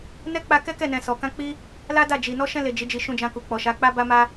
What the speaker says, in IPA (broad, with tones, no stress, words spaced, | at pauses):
nɛ˦k͡pa˧kɛ˦ kɛ˦˨nɛ̃˨sɔ˨ kã˧k͡pi˦ | la˦da˦˨d͡ʒi˨ nɔ˧ʃɛ̃˧le˨ d͡ʒi˨˦d͡ʒi˧ ʃũ˧d͡ʒã˧ ku˨k͡pɔ˨ʃa˨˦ k͡pa˦ba˦ma˦